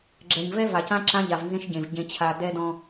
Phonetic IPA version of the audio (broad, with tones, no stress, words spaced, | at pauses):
ɡ͡ǁɛ˨ɲ vɛ˦va˨cã˦ ǁã˦ʎa˨vnzẽ˦ʃ ɟẽ˨v ɟẽ˦t͡ɕʰa˦ dɛ˦dɔ̃˦